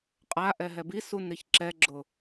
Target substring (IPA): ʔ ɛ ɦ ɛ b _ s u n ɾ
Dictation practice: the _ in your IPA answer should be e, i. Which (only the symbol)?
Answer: i